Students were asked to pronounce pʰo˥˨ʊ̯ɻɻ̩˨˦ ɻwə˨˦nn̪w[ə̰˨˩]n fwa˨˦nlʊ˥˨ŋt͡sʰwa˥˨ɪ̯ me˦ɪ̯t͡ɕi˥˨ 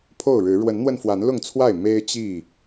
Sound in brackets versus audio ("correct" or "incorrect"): incorrect